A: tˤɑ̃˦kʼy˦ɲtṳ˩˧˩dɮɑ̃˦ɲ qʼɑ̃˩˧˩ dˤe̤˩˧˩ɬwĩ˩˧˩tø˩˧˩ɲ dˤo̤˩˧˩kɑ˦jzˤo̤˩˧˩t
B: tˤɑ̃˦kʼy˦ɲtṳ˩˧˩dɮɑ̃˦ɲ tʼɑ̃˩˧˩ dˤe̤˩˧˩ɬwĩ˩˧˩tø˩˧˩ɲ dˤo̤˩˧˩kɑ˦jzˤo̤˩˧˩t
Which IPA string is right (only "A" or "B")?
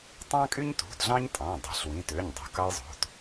B